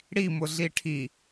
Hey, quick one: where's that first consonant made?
retroflex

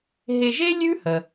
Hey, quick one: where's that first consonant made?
throat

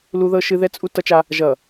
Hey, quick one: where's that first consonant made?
tongue tip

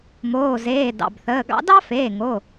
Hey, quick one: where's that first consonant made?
lips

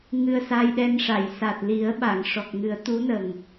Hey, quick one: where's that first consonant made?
velum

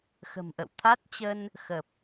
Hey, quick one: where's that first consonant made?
velum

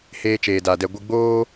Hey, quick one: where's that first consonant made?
throat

